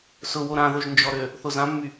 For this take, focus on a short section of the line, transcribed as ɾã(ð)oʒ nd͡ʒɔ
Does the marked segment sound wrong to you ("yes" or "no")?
no